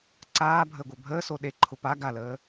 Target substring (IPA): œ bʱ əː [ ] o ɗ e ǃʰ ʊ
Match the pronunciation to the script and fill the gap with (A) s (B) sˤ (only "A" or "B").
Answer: A